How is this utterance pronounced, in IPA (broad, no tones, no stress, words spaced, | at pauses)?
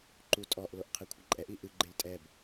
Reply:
ǃutʼɔʔ loʔqʰɛkʷʰɐǃʼɛʔ iʔɨ ɡ͡ǃeltʼɛb